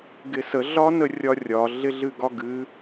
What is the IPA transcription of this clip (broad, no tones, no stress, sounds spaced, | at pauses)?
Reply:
ɡ ɪ s ə ɮ ɒ n ə rʲ ɒ rʲ ɒ ɮ ɪ ɮ ɨ ɡ ɒ ɡ ɨ